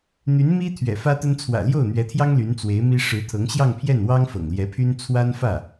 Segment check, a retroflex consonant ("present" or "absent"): present